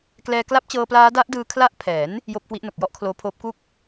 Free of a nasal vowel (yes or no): yes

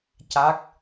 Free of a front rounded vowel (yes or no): yes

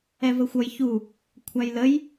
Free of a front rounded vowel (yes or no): yes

